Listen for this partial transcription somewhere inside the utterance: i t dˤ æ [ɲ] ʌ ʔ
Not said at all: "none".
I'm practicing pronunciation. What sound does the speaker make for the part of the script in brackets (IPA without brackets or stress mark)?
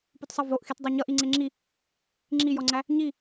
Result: ɲ